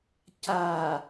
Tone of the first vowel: low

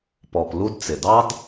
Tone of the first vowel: low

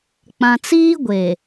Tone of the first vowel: low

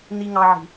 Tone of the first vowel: high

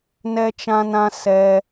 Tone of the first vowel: high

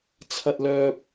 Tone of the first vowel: high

